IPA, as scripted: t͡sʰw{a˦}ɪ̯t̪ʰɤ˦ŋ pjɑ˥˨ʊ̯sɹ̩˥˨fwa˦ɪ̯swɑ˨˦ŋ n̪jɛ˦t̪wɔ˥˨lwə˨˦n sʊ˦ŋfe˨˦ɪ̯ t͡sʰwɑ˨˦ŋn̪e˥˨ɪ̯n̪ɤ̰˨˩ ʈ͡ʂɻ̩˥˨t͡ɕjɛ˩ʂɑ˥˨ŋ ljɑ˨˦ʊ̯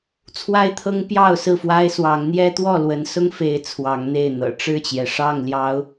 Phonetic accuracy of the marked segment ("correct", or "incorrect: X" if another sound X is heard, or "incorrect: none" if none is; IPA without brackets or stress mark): correct